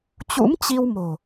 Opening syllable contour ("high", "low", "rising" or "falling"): rising